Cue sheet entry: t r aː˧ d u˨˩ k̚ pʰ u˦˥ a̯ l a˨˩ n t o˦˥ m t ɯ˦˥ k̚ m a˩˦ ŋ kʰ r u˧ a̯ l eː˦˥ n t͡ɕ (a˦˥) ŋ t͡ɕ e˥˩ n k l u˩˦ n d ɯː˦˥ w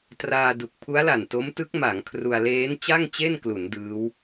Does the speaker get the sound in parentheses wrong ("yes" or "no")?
yes